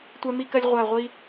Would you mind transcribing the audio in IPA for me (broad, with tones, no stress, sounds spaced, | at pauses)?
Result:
tʷ ɛ˦ m i˦ k ɜ˦ lʲ ʁʷ æ˦˨ ʁʷ i˦